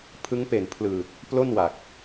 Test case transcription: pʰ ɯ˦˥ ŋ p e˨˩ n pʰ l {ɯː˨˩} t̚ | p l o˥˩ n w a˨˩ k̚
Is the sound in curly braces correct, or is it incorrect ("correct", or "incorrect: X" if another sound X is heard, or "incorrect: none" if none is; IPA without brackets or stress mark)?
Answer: correct